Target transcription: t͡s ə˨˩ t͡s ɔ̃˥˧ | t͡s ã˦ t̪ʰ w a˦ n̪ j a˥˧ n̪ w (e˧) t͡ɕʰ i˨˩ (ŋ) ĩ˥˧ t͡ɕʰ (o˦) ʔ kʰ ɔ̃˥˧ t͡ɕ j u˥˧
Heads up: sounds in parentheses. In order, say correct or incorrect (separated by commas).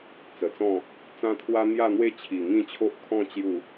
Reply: incorrect, correct, correct